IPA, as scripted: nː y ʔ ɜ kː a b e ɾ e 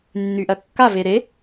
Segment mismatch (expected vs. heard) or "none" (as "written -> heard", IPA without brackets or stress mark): b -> v